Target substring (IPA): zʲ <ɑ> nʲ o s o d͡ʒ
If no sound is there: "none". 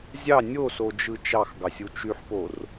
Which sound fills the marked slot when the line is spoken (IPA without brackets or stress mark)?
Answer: ɑ